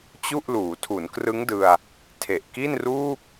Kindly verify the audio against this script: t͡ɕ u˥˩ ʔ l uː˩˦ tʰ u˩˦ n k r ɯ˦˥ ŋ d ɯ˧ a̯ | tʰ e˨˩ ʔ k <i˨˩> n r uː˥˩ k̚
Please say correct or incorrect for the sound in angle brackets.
incorrect: i˥˩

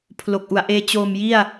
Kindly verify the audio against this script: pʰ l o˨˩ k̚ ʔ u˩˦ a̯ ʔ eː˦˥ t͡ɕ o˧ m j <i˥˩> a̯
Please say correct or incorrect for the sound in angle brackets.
correct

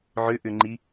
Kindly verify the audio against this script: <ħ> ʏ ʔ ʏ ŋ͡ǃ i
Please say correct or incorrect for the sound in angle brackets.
incorrect: ʕ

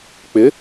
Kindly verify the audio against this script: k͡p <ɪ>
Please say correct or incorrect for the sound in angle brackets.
correct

